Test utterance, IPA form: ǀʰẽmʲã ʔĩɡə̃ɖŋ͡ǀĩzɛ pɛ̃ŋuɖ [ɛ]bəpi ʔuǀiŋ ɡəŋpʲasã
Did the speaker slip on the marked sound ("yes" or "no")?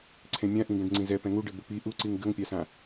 yes